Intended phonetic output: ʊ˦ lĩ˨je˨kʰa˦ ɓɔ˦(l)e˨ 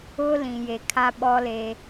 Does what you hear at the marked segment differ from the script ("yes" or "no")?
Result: no